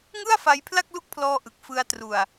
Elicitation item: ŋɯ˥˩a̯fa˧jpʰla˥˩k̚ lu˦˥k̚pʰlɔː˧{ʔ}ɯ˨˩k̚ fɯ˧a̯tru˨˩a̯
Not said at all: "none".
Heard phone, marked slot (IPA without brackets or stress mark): ʔ